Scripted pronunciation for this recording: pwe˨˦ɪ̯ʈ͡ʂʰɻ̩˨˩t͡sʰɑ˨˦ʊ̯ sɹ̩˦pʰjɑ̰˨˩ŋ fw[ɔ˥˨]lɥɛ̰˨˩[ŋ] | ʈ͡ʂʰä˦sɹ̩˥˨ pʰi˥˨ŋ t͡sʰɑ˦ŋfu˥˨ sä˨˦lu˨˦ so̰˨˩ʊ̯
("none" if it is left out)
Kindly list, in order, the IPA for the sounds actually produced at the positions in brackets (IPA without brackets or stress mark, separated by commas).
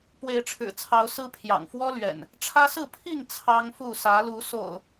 ɔ˦, n